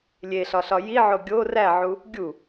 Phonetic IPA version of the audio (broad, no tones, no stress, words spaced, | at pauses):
lʲeɬɒɬɒ jiʕo ɡʲo ræʕu | ɡʲu